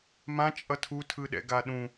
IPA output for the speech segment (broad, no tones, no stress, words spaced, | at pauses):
mãt͡ʃʼʌ tʰutʰɯɗɛ̰ɡa ɗũ